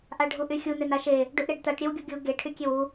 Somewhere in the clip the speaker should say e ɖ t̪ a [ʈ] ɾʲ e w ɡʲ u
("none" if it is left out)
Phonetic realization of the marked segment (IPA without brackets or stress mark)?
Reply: ʈ